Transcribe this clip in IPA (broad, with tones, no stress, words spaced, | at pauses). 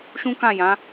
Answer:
ʃũ˦kã˦˨jã˨˦